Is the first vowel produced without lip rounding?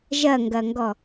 yes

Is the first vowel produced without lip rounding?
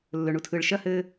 no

